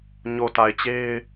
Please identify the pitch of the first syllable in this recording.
low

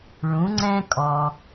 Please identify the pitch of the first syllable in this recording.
rising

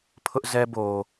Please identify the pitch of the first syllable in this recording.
high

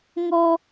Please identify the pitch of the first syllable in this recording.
high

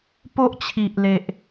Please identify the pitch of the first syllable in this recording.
high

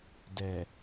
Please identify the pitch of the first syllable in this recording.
low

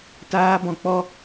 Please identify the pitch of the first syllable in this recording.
high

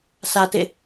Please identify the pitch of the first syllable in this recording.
low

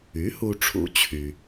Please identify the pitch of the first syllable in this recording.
rising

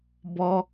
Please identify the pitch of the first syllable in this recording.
high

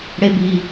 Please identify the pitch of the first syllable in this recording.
high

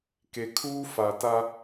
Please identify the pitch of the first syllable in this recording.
low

